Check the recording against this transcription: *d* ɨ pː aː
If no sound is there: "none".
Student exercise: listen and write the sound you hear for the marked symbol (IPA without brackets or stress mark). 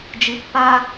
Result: d͡ʒ